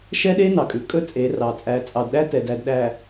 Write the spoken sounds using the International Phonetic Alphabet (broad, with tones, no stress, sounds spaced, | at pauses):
ʃ ɛ˦ ɗ e˦ n ɑ˨ kʼ ʉ˨ kʼ ɵ˦ t͡sʼ e˨˦ r ɑ˨ t͡sʼ æ˨ t͡sʼ ɑ˨ d ɗ æ˦ t ɛ˨ d æ˨ d ɗ æ˨